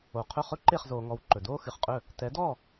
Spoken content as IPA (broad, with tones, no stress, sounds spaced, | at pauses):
o˩ qʰ ɵ˥˩ χ ɵ˥ ǃ e˥˩ χ z oː˩ ŋ ɔ˩˥ w ǃ ɵ˩ d oː˥ x ɨ˩ χ qʼ ɵ˥˩ | t ɛ˩˥ d ɔ˥˩